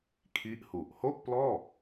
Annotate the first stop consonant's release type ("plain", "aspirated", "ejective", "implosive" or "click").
aspirated